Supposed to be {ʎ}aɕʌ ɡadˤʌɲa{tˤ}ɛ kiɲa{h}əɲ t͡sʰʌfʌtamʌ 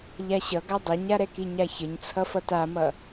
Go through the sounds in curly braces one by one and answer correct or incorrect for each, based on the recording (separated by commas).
correct, incorrect, incorrect